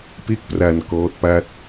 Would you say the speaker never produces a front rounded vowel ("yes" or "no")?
yes